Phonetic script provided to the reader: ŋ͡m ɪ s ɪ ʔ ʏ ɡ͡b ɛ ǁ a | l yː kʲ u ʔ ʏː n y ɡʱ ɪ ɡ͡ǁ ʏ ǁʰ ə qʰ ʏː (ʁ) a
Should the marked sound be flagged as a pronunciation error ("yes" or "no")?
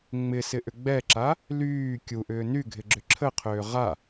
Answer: no